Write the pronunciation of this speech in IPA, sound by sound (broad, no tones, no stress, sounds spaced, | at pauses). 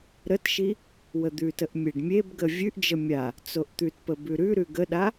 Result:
ɾ ə t ʃ i | w ə d̪ ʉ t ə ʔ mʲ e ɖ mʲ e b ɡ ə vʲ ʉ ʔ d͡ʒ ə mʲ a | t͡s o ʔ t̪ ʉ t p ə b ʉ ɾ ʉ ɾ ʉ ɡ ə ɗ a